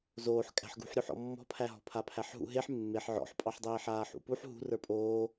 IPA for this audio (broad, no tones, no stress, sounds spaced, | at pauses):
z oː ħ kʼ æ̤ ħ ɡ ṳ ħ ɾʲ u ħ ɔ̰ mː ɔ̤ pʰ æ ɦ ɔ̤ pʰ a pʰ æ ħ ɦ ṵ ɦ e ħ mː e ħ ʕ ɔ̰ ħ pʼ ɑ ħ dˤ eː ħ aː ħ ṵ p u ħ ɦ ṳ r ə˞ pʼ oː